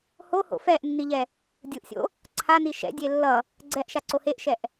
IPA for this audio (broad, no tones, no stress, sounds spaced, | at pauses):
h o h o̰ f ɛ ʔ nː i ʎ ɛ | dʲ ɯ ʔ sʲ o̰ | ǀʰ a n i ʃ ɛ̰ dʲ e lː ʌ | ɡ͡ǀ ɛ ʔ ʃ a ǀ o h e ʔ ʃ ɛ ʔ